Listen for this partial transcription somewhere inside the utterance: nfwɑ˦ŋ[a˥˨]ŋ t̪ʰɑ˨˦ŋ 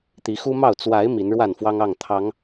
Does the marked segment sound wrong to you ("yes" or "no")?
yes